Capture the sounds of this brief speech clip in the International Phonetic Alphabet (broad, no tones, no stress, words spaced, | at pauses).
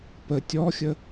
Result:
pə tʲɔxʲə